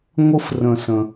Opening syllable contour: high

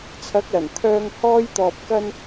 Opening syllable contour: rising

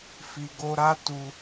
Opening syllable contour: low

